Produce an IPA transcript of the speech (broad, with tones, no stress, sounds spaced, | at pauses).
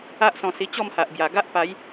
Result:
a˦ ʔ s ɔ̃˧ s i˧ t͡ɕ ɔ˥˧ m h a˨ ʔ b j a˨˩ ɡ a˦ ʔ p a˨˦ j